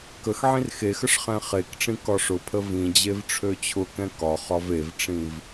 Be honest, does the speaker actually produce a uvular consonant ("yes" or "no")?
yes